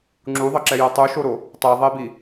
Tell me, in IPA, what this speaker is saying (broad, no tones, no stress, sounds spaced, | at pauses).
ŋ͡ǁ u ðˤ ʌ ǁ ɛ j o tˤ u ʃ o ɾ o | tˤ e ðˤ e b i